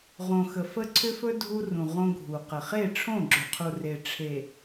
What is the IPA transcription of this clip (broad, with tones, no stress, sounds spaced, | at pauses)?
ʁ õ˨ x ə˨ f ə˦ ǀʰ ʏ˦ f ɵ˦ dʱ u˦ r ũ˨ ʁ õ˦ ɡʱ u˨ q ə˨ χ e˦˨ ʈ͡ʂʰ õ˦˨ ɡ͡ǁ ʏ˨ qʰ u˨ r e˨ ʈ͡ʂʰ e˨